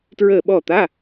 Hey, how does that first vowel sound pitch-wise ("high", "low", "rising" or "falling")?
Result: falling